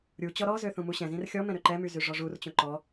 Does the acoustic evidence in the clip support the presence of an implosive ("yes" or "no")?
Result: no